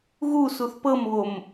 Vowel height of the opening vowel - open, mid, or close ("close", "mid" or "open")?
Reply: close